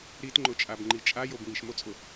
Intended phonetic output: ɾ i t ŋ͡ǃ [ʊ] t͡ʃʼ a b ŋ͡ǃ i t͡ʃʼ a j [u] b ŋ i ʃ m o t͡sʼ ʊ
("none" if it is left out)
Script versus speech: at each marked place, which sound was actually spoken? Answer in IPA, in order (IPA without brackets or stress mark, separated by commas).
ʊ, o